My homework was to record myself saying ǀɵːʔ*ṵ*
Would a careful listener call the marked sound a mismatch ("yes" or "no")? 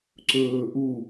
yes